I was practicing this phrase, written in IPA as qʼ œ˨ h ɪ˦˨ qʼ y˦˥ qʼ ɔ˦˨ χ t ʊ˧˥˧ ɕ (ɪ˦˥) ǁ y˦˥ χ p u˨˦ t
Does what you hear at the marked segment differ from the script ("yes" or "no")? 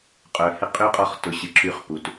yes